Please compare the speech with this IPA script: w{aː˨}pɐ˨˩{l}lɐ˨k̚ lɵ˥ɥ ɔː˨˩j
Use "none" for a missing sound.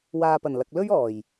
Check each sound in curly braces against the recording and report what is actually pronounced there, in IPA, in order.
aː˨, n

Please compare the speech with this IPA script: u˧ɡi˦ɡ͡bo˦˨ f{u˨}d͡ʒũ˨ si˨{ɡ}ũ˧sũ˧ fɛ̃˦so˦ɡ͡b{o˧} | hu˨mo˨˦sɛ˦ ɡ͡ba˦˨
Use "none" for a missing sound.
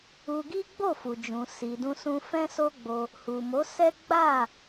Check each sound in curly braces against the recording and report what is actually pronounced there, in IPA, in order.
u˨, d, o˧

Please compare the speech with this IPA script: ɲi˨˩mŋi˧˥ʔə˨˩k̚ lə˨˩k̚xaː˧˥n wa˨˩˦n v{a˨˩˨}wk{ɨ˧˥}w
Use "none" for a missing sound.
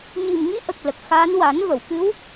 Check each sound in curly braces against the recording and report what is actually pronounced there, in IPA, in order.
ə˨˩˨, ɨ˧˥

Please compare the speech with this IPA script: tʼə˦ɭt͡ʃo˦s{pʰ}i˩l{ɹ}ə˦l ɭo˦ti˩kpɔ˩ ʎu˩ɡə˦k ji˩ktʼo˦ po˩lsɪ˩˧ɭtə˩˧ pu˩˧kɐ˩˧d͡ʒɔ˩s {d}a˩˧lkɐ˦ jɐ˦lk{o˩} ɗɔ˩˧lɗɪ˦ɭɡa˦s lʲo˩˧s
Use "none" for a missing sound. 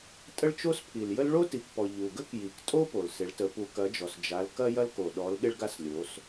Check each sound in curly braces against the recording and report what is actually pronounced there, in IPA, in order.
pʰ, j, d͡ʒ, o˩

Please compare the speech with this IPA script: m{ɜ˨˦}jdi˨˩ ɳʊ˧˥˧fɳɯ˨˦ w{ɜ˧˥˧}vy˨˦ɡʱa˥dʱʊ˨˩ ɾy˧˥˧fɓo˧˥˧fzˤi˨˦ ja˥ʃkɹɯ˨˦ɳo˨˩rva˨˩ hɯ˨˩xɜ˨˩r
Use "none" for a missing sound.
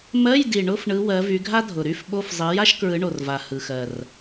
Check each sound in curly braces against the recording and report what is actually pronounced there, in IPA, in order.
ɜ˧˥˧, ɜ˨˦

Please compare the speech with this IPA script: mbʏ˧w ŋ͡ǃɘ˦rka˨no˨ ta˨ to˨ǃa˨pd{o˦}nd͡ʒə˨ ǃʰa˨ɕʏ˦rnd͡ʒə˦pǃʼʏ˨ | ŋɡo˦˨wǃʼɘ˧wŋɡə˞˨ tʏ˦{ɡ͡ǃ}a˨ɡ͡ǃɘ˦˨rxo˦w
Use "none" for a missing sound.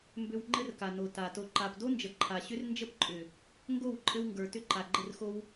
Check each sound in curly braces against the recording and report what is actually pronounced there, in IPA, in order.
o˦, ǃ

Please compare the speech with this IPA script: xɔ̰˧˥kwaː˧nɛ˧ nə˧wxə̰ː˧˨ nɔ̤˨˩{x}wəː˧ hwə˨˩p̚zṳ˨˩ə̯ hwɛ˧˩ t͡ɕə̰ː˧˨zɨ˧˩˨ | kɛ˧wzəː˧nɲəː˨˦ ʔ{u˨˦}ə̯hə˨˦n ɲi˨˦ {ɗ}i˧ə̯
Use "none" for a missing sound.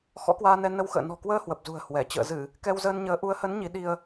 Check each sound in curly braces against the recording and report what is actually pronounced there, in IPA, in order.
k, u˨˦, ɗ

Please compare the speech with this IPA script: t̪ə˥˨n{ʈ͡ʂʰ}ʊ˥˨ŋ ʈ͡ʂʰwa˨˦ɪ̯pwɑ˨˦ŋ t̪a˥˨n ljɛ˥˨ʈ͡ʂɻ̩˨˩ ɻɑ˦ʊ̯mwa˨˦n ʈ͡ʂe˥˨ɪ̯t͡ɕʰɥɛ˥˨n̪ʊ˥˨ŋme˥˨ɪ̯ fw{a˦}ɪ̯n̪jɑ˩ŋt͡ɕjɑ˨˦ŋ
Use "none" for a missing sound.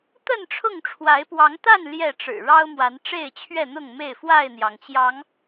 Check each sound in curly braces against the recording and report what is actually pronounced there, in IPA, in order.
ʈ͡ʂʰ, a˥˨

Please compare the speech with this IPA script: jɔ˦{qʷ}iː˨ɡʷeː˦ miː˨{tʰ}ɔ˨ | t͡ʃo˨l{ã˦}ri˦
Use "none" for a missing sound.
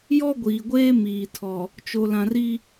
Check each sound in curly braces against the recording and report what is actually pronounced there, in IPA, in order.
ɡʷ, tʰ, ã˨

